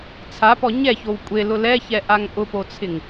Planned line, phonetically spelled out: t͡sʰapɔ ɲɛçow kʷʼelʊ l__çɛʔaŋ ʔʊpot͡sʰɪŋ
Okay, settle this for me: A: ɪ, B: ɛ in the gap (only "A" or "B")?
B